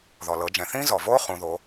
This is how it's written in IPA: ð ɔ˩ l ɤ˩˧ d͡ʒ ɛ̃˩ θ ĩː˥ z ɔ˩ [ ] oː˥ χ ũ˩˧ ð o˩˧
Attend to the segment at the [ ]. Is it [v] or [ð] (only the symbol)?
v